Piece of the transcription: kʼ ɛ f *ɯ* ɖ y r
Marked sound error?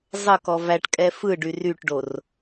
no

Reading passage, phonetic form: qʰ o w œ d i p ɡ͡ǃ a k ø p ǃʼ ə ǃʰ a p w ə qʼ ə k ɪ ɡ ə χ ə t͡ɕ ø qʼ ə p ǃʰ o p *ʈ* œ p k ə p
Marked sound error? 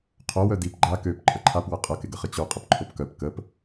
yes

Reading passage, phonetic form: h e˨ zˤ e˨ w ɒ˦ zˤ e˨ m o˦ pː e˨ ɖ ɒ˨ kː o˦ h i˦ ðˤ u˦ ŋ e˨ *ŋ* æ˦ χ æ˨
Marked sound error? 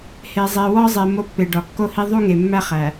yes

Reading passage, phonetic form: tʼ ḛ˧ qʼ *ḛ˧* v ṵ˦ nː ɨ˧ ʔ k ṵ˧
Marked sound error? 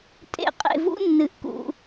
no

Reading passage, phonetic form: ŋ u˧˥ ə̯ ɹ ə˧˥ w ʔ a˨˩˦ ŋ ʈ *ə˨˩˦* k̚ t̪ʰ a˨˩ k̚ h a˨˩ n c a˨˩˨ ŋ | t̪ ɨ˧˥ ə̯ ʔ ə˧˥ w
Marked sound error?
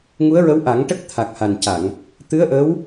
yes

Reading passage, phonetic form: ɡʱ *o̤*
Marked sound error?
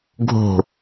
no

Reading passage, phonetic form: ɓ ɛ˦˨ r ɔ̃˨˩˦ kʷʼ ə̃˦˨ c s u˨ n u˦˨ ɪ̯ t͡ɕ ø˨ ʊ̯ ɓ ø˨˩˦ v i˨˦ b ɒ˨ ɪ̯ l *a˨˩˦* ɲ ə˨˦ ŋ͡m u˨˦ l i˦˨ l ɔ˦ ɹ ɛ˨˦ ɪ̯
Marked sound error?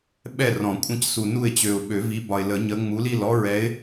yes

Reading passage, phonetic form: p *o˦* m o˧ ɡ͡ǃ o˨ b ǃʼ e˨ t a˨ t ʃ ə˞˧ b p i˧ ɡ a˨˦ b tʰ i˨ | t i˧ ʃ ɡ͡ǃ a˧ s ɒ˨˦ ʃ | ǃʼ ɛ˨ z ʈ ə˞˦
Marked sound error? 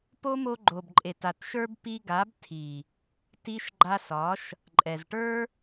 no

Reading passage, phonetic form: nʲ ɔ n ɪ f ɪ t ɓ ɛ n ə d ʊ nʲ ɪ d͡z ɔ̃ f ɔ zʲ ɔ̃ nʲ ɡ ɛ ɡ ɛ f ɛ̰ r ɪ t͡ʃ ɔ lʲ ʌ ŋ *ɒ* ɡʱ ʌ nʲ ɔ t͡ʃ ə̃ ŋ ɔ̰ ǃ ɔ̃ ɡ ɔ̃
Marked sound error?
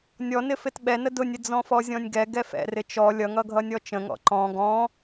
yes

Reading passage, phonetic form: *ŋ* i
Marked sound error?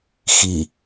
yes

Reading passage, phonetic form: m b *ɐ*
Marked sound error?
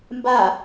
yes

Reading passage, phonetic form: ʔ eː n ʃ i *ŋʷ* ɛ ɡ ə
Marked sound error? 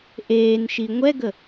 no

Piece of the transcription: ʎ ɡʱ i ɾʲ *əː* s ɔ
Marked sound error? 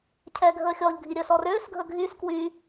no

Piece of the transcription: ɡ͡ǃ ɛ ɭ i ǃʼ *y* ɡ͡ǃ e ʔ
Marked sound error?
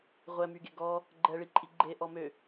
yes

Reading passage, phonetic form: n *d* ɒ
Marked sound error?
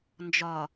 yes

